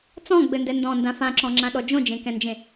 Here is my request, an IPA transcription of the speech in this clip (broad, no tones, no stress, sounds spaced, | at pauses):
t͡s ɔ̃ ɡ͡b ɘ n d ɛ n d ɔ̃ n d ã f ã ǁ ɔ̃ ŋ͡ǁ ã ɗ ɔ d͡ʒ õ d͡ʒ ẽ k ɛ̃ n d͡ʒ ẽ